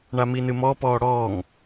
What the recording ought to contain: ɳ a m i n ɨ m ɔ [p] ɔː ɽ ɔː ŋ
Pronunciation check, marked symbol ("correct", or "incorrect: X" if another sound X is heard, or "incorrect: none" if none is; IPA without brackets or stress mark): correct